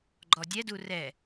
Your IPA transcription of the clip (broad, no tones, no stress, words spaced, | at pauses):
ɡ͡ǃɔdʲɛdu rɛ